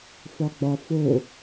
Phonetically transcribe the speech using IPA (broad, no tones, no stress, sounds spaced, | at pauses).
f ɒ ɡ͡b ɒ f o